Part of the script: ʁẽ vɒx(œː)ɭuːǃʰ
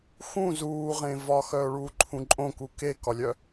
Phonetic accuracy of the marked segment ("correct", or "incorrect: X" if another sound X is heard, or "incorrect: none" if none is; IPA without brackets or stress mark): correct